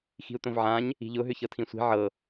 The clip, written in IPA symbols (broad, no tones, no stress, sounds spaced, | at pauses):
x i̤ u̯ t̪ õ v ʕ ã ɲ | i̤ ʎ ʊ ɦ ʏ ç ɤ tʰ ĩ sʷ i̤ ʕ ɤ